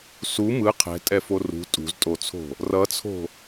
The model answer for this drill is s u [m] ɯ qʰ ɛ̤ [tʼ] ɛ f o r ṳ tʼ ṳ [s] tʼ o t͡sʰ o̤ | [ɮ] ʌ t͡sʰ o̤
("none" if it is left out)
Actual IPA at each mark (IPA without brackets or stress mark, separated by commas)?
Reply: m, tʼ, z, r